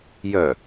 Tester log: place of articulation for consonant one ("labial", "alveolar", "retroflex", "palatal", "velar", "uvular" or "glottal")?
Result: palatal